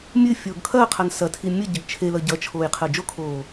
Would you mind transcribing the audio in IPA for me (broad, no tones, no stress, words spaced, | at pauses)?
mʲɨ fʲoːɡkʰɐːqʰan sɐtʰi mʲə ɟəɡt͡ʃʰelʌ ɟʌt͡ʃʰoːj qʰəːd͡ʒokʰoː